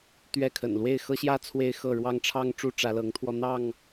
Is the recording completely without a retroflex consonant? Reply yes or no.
no